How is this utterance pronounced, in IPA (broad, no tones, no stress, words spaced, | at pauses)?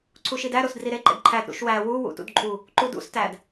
ǀʰuʃidæ ɾosdriɾe ǃḛdǃʰæd ɾṵʃwæ wu wṵtṵdǃʼu | ǃudṵs tæd